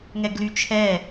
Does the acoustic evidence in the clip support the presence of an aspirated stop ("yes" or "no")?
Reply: yes